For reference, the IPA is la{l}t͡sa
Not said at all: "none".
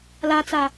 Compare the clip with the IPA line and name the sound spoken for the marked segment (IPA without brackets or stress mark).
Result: none